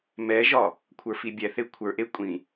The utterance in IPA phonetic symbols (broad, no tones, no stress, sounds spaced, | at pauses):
m ɛ ʒ ɒ | kʷʰ ə˞ f i bʲ ɛ θ e kʷʰ ə˞ ʔ e kʷʼ ĩ